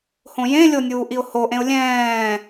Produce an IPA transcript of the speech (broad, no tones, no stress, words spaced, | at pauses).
hõjẽlʲonʲuː ʔiʊ̯hoʔẽʊ̯ lʲɛ̃ː